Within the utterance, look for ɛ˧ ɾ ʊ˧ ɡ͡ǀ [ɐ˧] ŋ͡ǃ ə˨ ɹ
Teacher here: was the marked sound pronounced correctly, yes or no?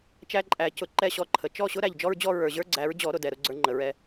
no